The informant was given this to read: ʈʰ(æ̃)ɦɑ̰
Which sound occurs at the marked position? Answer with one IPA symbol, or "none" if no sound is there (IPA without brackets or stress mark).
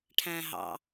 æ̃